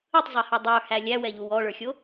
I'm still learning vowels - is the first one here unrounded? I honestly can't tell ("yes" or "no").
yes